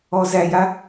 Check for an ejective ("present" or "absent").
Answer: absent